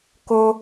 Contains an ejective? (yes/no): no